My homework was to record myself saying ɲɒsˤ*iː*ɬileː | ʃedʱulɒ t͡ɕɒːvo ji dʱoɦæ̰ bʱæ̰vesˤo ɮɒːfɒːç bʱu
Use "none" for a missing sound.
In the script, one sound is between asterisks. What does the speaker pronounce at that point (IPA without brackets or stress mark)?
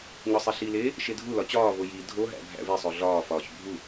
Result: i